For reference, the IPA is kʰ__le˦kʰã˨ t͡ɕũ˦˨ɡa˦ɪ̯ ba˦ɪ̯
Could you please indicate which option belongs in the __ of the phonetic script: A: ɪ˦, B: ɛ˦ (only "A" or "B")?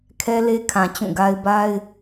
B